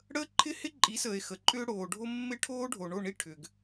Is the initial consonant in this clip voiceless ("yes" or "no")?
no